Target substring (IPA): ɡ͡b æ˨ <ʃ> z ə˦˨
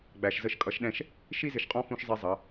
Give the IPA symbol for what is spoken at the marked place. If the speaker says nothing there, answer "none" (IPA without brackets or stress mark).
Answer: ʃ